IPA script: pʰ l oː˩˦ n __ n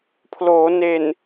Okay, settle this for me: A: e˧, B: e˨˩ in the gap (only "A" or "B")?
B